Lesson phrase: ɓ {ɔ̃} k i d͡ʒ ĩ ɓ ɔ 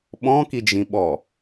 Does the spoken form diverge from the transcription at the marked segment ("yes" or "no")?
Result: no